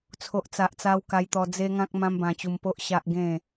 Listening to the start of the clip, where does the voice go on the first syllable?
low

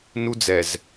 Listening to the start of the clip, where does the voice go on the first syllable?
high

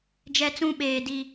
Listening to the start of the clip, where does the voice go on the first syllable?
high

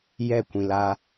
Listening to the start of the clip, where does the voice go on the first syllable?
falling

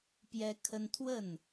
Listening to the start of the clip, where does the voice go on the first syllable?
high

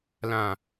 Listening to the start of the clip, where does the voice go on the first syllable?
low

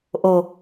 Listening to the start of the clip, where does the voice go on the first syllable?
low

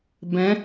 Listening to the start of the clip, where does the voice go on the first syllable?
rising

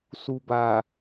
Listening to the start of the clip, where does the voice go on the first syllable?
low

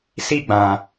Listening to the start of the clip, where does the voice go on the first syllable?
falling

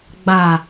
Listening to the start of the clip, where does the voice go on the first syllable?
low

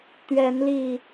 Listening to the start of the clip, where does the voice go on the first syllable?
rising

